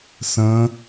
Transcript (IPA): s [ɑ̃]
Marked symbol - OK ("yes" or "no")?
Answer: no